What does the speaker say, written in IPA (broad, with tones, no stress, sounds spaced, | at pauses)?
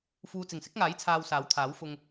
f uː˨ t͡s ɪ˨˩ ŋ s ɪ˨˥ k̚ ŋ aː˨˥ j t͡sʰ aː˧ w s aː˨˥ w t̪ʰ aː˨˥ w f ʊ˧ ŋ